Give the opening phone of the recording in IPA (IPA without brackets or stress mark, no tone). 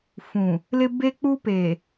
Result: f